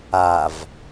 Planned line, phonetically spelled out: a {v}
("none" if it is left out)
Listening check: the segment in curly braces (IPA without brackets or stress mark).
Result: v